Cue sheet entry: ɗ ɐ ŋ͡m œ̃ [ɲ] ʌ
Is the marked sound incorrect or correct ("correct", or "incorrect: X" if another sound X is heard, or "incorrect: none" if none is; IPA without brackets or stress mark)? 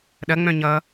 correct